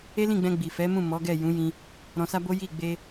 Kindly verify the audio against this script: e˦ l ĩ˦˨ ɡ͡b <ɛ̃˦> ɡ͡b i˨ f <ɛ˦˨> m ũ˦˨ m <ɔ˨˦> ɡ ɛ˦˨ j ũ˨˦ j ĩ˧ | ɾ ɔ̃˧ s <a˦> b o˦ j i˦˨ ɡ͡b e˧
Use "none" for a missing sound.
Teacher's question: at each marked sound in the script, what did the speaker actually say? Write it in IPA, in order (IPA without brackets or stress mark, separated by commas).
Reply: ɛ̃˧, ɛ˨˦, ɔ˨˦, a˦